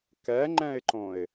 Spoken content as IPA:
kɛŋ͡ǃɛ̃ɪ̯ǃõɪ̯

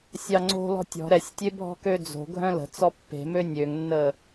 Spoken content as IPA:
sʲɑŋ͡ǀo̤lɔ̤ tʲɔ̤ ɾɛsʲtʲe bʱɔ̤kød͡zo̤ɡʱœ̃ lə̤ t͡sɔpːe̤mø nʲøŋnːə

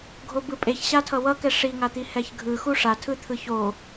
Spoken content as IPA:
ɡʱobɯpʼeç ɕatʰʌwʌkɛ ʂiŋat̪i hɛçɡʱɯ xuʂa tʰɯt̪ʰɯço

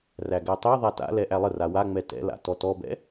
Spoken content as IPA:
ræɡætˤeðˤa ta̰lɛ ʔælˠəra waŋ͡mɛ tɛ̰la̰ tɔtɔbɛ̰

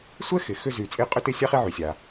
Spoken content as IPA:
sʷɛ˥xɪ˩ xʏ˧zy˩t͡sʼɪ˧ qʼʏ˥tɪ˥ sʲa˥χi˥ʕy˩sʲa˩

